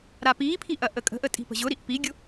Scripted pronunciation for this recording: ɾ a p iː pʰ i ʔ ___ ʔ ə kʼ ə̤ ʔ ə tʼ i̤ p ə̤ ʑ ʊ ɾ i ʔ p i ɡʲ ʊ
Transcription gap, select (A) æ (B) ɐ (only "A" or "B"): B